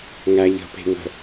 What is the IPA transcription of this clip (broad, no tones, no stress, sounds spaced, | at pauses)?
ŋ æ ʎ ə̤ p e̤ ŋ ə̤